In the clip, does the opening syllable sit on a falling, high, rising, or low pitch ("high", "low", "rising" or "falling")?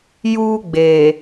high